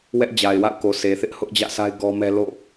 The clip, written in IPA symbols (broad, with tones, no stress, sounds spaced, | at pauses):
w ɛ˦ ʔ d͡ʑ a˨ ɪ̯ w a̰˦˨ ʊ̯ k o˨ sʰ e˨ θ ɪ˦ ʔ h ʊ˦ ʔ d͡ʑ ä̰˦˨ s a˦ ɪ̯ ɡ ɔ˦ m ɛ˦ l o̰˦˨